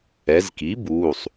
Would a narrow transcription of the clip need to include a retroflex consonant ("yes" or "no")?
no